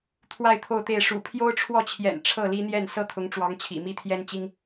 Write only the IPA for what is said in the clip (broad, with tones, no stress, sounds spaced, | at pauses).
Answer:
t̪ʰ w a˥˧ ɪ̯ t̪ʰ o˥˧ ʊ̯ t̪ e˥˩ ɪ̯ ʂ ṵ˨˩ pʰ j o˥ ʊ̯ ʈ͡ʂʰ w ɔ˥˩ t͡ɕʰ j ɛ̰˨˩ n ʈ͡ʂʰ ɤ˥˩ l i˥ n̪ j ɛ˥˩ n s ɤ˥ t̪ʰ ʊ˧˥ ŋ ʈ͡ʂ w ɑ˧˥ ŋ t͡ɕʰ ḭ˨˩ m i˥ t̪ʰ j ɛ˥ n t͡ɕ i˥ ŋ